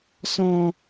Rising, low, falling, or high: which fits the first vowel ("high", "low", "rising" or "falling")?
high